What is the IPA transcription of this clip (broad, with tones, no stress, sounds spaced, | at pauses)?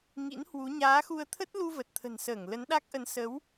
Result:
ŋ ḭ˧˥ n h w u˨˦ ɲ aː˨˦ x u˧ ə̯ t̪ʰ ə˦˥ t̚ l u˧ v ə˨˩ t̚ t̪ʰ ə̤˨˩ n s əː˧˩ ŋ l ə˨˦ n ɗ a˦˥ k̚ ʔ ə˨˦ n s ə˨˦ w